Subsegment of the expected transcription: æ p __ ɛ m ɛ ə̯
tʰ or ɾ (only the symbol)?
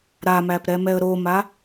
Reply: ɾ